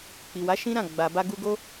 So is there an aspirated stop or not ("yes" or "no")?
no